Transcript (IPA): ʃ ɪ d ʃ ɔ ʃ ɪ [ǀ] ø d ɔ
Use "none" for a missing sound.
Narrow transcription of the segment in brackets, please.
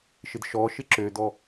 ǁ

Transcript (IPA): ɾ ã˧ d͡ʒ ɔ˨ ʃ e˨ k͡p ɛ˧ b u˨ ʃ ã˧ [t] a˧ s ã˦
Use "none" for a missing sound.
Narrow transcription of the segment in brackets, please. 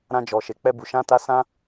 t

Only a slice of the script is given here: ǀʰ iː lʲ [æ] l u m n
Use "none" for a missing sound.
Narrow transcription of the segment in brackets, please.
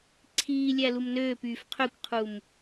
æ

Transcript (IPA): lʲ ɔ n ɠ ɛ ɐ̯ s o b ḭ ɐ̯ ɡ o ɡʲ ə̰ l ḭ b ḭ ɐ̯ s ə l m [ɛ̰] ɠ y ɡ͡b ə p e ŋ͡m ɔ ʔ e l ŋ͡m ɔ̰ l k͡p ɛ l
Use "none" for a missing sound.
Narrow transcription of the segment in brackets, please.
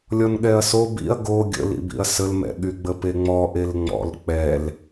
ɛ̰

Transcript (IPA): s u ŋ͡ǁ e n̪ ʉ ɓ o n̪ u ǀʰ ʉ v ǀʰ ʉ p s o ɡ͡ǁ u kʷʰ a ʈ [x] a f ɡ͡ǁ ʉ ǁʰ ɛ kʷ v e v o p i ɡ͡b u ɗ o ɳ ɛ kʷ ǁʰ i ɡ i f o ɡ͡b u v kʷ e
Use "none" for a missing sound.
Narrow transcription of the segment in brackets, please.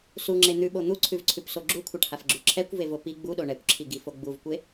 h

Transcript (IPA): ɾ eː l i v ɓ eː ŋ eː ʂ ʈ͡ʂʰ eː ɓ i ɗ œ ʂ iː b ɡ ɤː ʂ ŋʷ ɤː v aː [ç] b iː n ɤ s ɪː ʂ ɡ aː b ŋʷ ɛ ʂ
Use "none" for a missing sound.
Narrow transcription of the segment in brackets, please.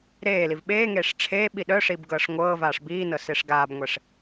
ʂ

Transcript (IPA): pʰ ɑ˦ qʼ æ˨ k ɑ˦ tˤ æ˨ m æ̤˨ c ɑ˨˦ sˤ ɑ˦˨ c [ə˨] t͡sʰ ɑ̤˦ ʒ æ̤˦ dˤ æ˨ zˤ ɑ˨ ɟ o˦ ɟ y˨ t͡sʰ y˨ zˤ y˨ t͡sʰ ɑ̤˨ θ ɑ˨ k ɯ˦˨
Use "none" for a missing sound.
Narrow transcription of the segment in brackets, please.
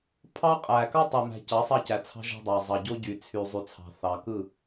æ˨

